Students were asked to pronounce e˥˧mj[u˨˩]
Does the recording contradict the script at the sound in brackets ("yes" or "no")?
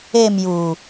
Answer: no